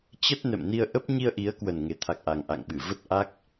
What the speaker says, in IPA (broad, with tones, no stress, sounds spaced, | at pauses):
t͡ɕ ə˦˥ t̚ n ɛ̰˧˨ m n i˧ ə̯ ʔ ə˦˥ p̚ ɲ i˧ ə̯ ʔ i˨˦ ə̯ k w ə˨˩ n ŋ e˨˩ t̪ʰ a˨˩ k̚ ʔ a˨˩ ŋ ʔ a̰˧˨ ŋ ɓ ɨ˧˩ v ə˦˥ t̚ ʔ a˦˥ k̚